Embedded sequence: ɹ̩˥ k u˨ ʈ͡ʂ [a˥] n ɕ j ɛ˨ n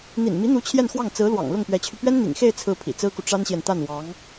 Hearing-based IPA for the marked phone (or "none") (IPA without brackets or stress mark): a˥